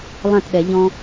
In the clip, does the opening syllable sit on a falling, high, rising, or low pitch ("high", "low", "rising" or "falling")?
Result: falling